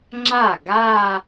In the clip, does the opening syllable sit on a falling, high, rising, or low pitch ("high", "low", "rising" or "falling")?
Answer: falling